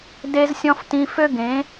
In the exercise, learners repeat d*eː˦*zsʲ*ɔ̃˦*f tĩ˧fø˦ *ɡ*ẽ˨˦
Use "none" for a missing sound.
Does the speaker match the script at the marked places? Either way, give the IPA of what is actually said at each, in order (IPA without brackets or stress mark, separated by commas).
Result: e˦, ɔ̃˦, ɡ